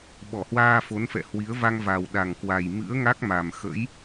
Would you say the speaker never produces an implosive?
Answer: no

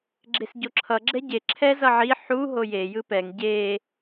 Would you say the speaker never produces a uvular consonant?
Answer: yes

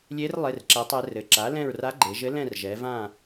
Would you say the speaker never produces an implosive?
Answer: yes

